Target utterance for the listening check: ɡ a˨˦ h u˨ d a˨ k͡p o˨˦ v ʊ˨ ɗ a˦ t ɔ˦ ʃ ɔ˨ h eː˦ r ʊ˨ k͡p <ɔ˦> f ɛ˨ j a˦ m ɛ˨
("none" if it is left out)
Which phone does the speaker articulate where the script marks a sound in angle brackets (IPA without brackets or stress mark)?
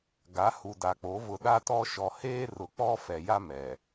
ɔ˦